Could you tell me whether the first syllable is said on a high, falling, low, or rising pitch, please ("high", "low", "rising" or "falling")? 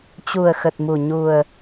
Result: low